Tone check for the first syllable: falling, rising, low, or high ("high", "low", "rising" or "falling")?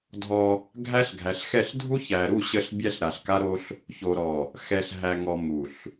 high